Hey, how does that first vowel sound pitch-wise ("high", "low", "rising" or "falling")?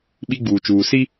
high